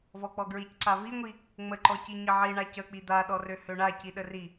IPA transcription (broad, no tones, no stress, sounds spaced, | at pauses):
v ɔ k͡p ɔ ɡ ɹ i c ǀ a v i ŋʷ i | ŋ͡m ə ǃ ɔ c i ɲ ə ʕ i ɳ a c ə k͡p i d̪ a ɗ ɔ r ø h ø ɳ a c i ɗ ə r i